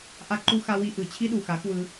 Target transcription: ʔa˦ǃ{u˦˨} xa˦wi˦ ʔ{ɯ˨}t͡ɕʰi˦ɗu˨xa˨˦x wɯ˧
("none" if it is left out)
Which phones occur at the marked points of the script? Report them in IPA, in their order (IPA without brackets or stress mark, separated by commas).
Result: u˦, ɯ˨